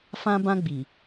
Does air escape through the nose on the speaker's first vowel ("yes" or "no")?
yes